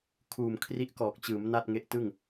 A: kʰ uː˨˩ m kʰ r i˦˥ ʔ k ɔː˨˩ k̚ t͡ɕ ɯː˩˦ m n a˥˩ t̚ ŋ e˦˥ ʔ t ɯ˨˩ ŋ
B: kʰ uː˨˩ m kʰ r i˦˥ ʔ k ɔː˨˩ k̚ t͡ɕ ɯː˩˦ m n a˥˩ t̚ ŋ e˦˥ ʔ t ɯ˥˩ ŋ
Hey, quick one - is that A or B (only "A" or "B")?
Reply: B